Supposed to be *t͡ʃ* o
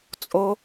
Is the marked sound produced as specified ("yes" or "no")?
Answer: no